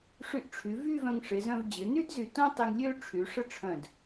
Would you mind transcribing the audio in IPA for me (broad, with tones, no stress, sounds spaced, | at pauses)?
ʂ y˧ ʔ ʈ͡ʂʰ y˩˧ v y˥˧ v œ̃˧ ŋ ʂ ɪ˩˧ z œ̃˧ v d͡ʑ ɪ˩˧ n y˥ d z y˧˩ t õ˥ tˤ e˧ ŋ lʲ ø˥ ʈ͡ʂʰ y˩˧ ʂ ə˥˧ ʈ͡ʂʰ œ̃˧˩ d